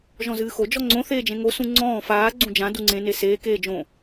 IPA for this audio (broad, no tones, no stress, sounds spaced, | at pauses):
ʒ ɔ̃ z ɨː x o d͡ʒ ɔ ŋ͡ǀ õ θ eː d͡ʒ ẽ ŋ o s ũ ŋ͡ǀ ɔ̃ː f aː ɡ͡ǀ ũ d͡ʒ ã d u ŋ͡ǀ ẽ n e s eː k eː d͡ʒ õ